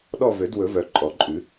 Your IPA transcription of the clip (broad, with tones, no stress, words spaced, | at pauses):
ɗɔ˦˨vø˨˩˦dwɵ˨˩˦vœ˨˩ ǃʼɔ˨˩˦ǃʼʉ˨˩˦